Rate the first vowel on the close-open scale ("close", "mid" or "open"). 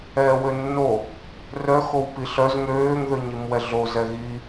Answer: mid